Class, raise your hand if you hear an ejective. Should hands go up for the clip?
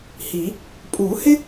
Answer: yes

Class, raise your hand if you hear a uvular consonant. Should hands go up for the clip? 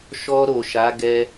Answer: no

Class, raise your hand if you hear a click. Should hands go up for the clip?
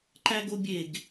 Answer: yes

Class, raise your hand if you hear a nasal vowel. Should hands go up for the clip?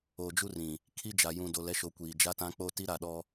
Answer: yes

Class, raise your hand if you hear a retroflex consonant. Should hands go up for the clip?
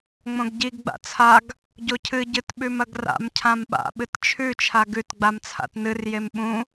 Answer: no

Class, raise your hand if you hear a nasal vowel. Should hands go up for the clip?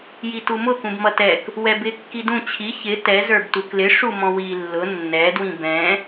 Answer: yes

